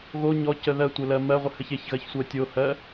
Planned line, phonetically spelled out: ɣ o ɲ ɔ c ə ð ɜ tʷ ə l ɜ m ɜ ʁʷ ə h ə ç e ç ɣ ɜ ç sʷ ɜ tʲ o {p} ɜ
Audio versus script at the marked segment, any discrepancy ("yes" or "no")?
yes